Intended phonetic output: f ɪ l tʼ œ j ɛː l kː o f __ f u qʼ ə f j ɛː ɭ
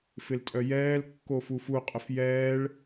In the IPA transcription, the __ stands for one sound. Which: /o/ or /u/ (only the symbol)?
u